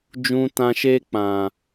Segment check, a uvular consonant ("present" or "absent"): absent